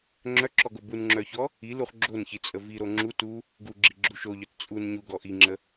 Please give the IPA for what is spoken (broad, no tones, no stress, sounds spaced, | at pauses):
ŋ͡ǁ œ ǁ ɔ ɡ o b u n ŋ͡ǁ œ ç ɔ | i l u χ ɡ͡ǁ o n ç i t͡sʼ ə v i ɾ o ŋ͡ǁ u t u | ɡ u ɡ͡ǁ i ɡ͡ǁ u ʃ o ʎ œ t t͡sʼ u n ɲ u ɡ ɔ ʔ i ŋ͡ǁ ə